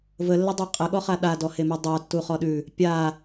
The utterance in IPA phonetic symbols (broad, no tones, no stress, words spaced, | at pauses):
vəlːədˤa qʼəɠɔχa ɗadɔhemu dˤatːuχɔɗʉ | pʲa